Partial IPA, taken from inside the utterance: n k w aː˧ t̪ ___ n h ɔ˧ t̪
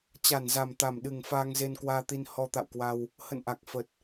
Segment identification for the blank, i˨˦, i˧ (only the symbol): i˧